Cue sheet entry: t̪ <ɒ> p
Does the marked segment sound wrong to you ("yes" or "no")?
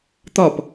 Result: no